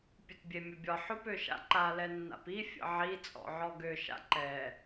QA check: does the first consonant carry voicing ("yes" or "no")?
no